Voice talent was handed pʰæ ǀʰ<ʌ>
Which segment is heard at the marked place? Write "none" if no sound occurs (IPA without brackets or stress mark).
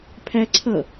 ʌ